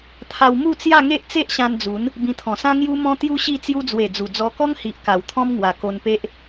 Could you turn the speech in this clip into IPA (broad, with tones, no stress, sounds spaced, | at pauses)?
t̪ʰ a˧ w m u˥˧ t͡s j a˥˧ ŋ e˦ ʔ t͡s e˦ ʔ ɕ ã˧ n d͡z u˨˦ n | b ĩ˧ t̪ʰ ɔ̃˨˩ s ã˦ ŋ j u˦ m ɔ̃˦ t̪ j u˦ ɕ i˥˧ t͡s j u˧ d͡z w e˨˩ d͡z u˨˩ d͡z ɔ˧ k ɔ˦ ŋ h i˨ ʔ k a˨˩ w t̪ʰ ɔ̃˦ m ŋ w a˨˩ k o˧ n p e˦ ʔ